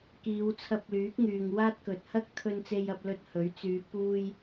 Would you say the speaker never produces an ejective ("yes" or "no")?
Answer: yes